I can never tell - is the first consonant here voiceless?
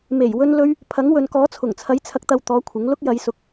no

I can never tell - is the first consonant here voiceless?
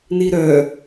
no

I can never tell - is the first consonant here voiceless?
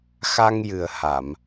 yes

